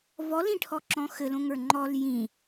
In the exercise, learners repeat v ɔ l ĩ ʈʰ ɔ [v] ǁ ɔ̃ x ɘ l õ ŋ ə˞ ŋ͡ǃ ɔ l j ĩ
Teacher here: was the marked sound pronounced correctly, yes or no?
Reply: no